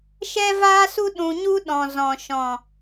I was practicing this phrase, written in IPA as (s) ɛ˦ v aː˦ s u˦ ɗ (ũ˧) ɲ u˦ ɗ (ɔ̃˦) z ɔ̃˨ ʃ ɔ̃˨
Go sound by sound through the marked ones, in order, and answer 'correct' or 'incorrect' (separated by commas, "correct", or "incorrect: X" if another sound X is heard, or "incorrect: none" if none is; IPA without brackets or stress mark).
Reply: incorrect: ʃ, correct, incorrect: ɔ̃˨